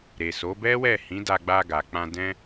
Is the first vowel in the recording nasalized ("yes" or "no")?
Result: no